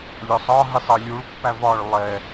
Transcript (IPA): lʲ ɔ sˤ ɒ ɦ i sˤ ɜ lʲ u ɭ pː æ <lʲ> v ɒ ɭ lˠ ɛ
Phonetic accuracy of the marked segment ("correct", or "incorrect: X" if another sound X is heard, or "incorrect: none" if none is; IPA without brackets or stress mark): incorrect: none